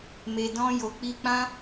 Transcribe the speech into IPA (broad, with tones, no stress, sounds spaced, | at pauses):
m e˨ d ɔ̃˧ j o˨ k͡p i˧ k͡p ã˦